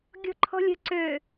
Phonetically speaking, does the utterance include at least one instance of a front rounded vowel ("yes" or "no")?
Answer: yes